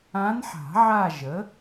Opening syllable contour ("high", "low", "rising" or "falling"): rising